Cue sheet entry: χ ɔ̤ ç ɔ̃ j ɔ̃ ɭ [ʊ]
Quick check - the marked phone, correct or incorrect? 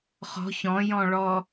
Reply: incorrect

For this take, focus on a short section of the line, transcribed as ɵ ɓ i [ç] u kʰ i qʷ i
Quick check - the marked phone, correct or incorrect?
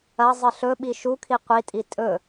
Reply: incorrect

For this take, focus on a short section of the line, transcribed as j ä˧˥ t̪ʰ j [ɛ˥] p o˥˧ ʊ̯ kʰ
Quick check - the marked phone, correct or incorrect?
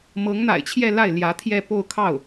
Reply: incorrect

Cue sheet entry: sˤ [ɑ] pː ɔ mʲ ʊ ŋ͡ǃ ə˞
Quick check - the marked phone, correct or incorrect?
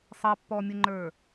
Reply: correct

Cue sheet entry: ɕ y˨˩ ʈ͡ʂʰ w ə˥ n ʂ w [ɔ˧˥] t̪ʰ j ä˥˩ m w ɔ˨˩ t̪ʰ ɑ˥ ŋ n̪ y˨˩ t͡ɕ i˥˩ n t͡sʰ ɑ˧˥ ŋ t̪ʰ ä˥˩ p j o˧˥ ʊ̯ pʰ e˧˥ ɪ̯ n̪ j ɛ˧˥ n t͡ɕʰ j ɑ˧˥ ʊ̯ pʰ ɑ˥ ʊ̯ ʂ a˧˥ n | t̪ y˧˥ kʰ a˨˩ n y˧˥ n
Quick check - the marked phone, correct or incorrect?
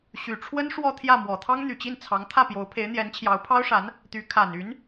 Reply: incorrect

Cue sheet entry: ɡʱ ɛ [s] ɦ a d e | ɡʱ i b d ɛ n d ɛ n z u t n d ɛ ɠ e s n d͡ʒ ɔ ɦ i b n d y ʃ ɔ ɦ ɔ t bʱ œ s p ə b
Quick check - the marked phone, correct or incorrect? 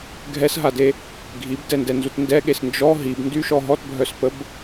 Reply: correct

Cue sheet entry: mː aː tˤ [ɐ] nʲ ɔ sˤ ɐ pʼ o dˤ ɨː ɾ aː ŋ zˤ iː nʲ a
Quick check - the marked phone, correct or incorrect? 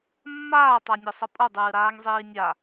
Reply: incorrect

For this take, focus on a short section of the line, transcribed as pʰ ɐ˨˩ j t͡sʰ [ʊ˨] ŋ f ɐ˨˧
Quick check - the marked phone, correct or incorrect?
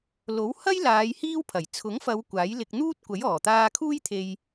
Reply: incorrect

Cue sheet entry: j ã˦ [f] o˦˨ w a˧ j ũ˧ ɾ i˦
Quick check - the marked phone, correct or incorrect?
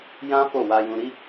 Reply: correct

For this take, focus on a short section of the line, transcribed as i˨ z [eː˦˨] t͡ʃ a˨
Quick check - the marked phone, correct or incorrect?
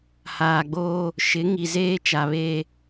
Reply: incorrect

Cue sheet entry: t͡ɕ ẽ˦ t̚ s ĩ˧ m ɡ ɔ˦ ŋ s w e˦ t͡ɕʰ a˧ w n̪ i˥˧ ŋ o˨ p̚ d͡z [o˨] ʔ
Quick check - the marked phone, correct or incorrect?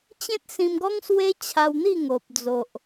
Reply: correct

